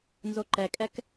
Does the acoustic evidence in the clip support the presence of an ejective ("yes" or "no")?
yes